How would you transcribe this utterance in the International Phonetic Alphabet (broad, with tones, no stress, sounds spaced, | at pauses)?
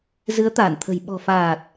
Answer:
z ɨ˨˦ ə̯ t̪ aː˧˩ n t̪ʰ ə̤˨˩ j ɓ ɔ̤˨˩ f aː˨˩ t̚